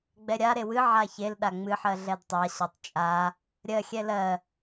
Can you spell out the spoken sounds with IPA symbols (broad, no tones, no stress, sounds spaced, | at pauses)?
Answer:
ɡ͡b ɛ ɾʲ a ɾ e w ɨ ʕ a ç e l ɗ a ŋ͡m ɨ ħ ɜ ɮ ɛ d tˤ a ɕ ɒ tˤ t͡ʃʼ a | ɾʲ ɜ xʲ ɛ l ɜ